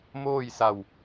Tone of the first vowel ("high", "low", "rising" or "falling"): falling